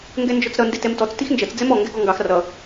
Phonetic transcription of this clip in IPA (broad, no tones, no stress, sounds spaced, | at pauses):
ŋ ɡ ɛ n d͡ʒ ɔ t͡s ɾ ʌ n d ɪ t ɛ m t ɔ t͡s t i x n d͡ʒ ʌ t͡s d͡z ɛ m ɔ ŋ ɡ ɛ ɡ ɔ ŋ ɡ ɑ x r ʌ